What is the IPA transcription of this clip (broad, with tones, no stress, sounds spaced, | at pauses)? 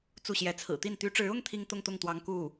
t͡s u˥˩ ɕ j ɛ˧˥ t͡sʰ ɹ̩˨˩ t̪ i˥˩ n t̪ y˧˥ ʈ͡ʂ ɻ̩˧˥ ʊ˥ ŋ t̪ʰ i˥ ŋ t̪ ʊ˥˧ ŋ t̪ ʊ˥˩ ŋ t̪ w ɑ˧˥ ŋ k u˥˩